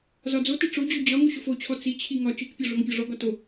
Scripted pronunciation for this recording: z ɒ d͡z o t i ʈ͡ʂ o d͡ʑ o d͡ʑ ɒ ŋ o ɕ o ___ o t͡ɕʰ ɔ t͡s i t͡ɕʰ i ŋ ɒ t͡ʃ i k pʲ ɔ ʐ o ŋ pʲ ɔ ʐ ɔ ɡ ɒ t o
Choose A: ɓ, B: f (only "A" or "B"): B